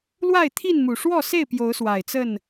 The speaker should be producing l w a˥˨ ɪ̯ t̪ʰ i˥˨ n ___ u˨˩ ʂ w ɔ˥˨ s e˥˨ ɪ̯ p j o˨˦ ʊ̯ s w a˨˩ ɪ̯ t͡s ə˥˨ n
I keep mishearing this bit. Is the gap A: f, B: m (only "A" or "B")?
B